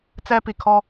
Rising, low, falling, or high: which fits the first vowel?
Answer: high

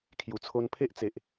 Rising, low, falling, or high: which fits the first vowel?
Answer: low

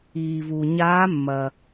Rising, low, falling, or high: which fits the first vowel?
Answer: low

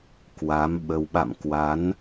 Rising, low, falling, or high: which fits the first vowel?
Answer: rising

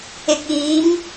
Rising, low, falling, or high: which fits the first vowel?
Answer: low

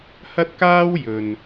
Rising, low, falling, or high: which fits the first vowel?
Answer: high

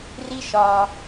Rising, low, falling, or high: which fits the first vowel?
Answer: high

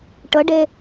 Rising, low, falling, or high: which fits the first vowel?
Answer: rising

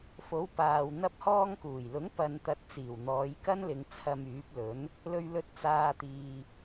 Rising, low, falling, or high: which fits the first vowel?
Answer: rising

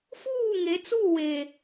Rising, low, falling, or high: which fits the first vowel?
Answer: falling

